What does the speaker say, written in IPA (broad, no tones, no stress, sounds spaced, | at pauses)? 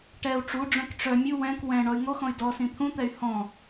ʈ ɛ u̯ ʈ͡ʂ u ɖ͡ʐ œ̃ k ʈ͡ʂ œ mʲ u w ɛ̃ k w ɛ̃ ɳ ɔ y̯ ŋ o x ɔ̃ y̯ d ɔ s ĩ t̪ʰ ũ t̪ ɛ y̯ h ɔ̃